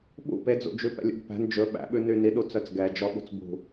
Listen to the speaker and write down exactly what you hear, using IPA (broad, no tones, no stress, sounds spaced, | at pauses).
ɓ ṵ p e d͡z ṵ d͡ʒ ʉ p ɛ̰ lʲ ṵ ɡ p æ̤ n d͡ʒ ɵ ɓ æ̰ ɓ ʉ n y n i ɗ u t͡s œ t͡s ɡ ɛ d͡ʒ ɔ ɓ ṳ t͡s b ṳ